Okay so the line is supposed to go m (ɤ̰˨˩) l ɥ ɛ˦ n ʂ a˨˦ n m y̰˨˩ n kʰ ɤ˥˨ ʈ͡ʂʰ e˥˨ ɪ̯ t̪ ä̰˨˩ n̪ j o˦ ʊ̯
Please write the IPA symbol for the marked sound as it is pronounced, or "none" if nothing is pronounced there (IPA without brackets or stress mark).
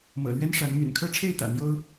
ɤ̰˨˩